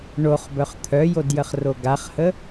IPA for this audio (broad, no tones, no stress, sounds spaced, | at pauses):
ɳ o χ b œ χ t̪ʰ œ j o d j ə χ r o ɡ a χ h ə